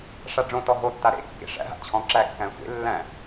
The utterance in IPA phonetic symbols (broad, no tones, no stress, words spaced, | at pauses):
ʂaɖ͡ʐõtɔ ɦotːa ɾḛkːḛ ʂæ̰ɦa̰ t͡ɕʰɔ̃ ǁækːæ̃ sʷḛ lːæ̃